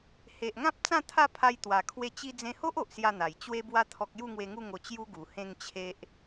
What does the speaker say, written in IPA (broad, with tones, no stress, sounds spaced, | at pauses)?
h e˨ ʔ ŋ ã˦ p̚ t͡s ã˥˧ t̪ʰ a˥˧ pʰ a˧ j t̪ w a˨˩ kʰ w e˥˧ t͡ɕ i˦ d͡z ẽ˧ h o˦ ʔ o˨ ʔ s j a˥˧ n̪ a˨˩ j t͡ɕ w e˦ b w a˦ t̪ʰ ɔ˦ k̚ j u˥˧ ŋ w e˧ ŋ u˥˧ ŋ o˧ t͡ɕ j u˦ ɡ u˨˩ h ẽ˥˧ ŋ t͡ɕʰ e˦ ʔ